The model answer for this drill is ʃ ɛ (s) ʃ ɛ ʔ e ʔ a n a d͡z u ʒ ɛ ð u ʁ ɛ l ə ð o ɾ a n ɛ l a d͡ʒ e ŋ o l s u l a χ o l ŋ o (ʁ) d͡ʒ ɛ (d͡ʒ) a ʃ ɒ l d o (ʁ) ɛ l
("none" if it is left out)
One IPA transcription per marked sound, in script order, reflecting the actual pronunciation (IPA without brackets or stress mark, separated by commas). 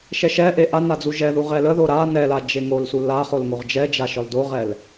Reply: none, ʁ, d͡ʒ, ʁ